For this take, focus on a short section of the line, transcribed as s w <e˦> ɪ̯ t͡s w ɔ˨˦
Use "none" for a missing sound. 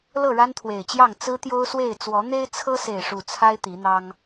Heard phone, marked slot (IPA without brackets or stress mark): e˥˨